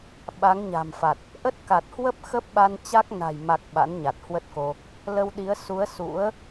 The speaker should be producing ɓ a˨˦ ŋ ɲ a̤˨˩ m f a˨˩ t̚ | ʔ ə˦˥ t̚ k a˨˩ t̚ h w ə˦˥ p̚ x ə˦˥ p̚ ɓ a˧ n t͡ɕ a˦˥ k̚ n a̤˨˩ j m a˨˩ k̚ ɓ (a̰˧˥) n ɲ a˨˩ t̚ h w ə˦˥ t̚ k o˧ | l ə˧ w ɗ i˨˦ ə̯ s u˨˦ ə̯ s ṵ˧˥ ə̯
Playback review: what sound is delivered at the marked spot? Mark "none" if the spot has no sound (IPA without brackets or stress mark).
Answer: a̰˧˥